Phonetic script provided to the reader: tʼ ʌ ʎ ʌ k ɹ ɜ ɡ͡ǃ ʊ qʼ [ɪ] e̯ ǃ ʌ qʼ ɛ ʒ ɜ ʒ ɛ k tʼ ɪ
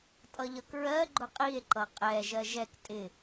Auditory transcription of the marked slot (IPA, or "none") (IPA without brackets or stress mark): i